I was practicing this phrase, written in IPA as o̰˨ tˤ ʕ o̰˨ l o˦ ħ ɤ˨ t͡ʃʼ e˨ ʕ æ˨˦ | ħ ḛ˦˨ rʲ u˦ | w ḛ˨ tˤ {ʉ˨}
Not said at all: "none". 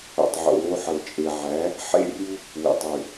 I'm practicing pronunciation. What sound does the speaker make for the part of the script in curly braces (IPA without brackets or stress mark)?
ʉ˨